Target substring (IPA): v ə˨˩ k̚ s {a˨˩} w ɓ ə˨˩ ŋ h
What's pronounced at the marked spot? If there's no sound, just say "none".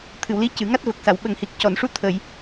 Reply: a˨˩˨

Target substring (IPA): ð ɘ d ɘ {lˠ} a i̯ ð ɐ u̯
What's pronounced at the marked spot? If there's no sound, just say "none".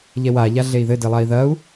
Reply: lˠ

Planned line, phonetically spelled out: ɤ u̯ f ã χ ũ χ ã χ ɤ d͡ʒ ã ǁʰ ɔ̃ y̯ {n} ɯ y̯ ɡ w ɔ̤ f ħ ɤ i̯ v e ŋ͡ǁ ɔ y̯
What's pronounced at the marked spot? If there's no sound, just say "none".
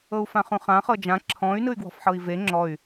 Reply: n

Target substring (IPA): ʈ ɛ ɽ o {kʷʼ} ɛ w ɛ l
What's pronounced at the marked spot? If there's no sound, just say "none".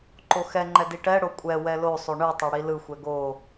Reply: kʷʼ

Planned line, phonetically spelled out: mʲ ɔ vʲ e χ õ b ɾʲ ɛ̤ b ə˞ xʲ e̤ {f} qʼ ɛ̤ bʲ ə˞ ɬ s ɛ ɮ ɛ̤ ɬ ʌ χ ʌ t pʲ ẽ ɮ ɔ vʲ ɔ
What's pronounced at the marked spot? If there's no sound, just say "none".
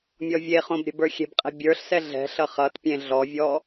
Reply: b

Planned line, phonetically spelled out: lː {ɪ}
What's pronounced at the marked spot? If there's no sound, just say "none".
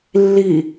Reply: i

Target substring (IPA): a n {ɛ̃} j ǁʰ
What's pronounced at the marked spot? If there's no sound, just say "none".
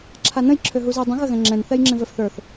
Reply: ə̃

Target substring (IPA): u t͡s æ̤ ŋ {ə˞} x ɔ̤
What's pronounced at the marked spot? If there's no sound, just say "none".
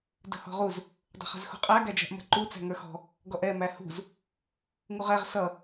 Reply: ə˞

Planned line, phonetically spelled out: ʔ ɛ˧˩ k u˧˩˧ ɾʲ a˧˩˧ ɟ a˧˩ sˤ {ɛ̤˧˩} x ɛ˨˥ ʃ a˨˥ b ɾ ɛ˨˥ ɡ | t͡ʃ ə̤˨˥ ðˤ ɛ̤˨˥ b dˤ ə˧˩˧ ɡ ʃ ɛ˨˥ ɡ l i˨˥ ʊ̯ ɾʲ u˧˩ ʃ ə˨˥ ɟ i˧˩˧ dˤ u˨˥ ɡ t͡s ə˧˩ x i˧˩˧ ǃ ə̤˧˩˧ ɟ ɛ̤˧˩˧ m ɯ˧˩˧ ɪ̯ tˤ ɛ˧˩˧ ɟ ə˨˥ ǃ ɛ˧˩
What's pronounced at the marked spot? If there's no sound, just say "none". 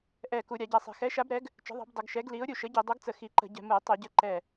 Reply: ɛ̤˧˩˧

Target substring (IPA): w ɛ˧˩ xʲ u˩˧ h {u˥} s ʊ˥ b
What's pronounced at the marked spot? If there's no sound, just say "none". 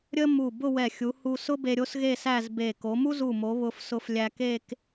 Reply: u˧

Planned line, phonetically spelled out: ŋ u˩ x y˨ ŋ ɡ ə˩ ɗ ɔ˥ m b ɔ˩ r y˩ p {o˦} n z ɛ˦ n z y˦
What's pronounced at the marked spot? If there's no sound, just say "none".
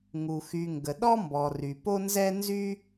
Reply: o˦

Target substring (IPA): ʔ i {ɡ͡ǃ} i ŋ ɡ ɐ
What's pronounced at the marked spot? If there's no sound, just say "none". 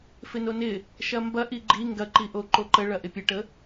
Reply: ɡ͡ǃ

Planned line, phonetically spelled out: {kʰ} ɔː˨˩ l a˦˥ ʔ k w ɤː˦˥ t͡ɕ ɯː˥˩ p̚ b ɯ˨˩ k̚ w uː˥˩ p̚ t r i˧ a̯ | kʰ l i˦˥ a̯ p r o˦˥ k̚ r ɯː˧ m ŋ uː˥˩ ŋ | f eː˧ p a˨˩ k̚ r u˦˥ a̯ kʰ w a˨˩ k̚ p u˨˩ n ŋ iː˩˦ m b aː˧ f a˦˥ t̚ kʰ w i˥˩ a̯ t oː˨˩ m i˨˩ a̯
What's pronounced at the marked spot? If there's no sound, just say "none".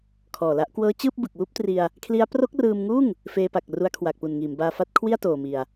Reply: kʰ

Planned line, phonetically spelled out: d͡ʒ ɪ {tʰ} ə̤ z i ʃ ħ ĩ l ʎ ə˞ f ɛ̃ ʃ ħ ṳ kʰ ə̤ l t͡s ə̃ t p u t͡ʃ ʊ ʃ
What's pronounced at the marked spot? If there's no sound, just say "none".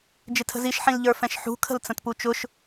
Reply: tʰ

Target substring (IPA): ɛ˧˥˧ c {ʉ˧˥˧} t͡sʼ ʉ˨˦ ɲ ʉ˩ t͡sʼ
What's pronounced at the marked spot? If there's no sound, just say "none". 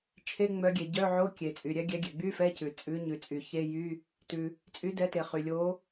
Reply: ʉ˩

